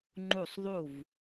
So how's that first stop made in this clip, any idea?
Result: click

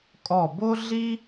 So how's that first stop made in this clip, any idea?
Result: ejective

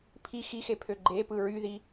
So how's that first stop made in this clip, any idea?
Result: aspirated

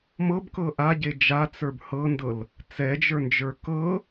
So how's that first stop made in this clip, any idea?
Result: plain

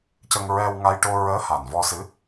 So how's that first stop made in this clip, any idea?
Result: plain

